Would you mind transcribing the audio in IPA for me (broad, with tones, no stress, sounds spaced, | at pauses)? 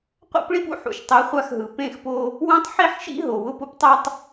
qʷ a̰˦ p ɭ i˦ p ṵ˦ ħ ṵ˨ ʃ tˤ ɛ˨˦ χʷ a˦ x ɦ ɯ˨ p ẽ˦˨ x p o˦ | w õ˦ tˤ ħ i˦ ħ ʃ ḭ˦ ɦ o˨ w ʊ˦ p ʊ˦ p tˤ a˦ tˤ